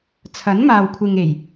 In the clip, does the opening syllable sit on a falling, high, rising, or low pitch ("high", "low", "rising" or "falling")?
rising